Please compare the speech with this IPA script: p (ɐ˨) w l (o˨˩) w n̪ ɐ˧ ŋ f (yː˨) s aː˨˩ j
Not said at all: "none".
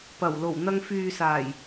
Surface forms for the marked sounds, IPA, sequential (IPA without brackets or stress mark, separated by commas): ɐ˨˩, o˨˩, yː˨